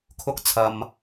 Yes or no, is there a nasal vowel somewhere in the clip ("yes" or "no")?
no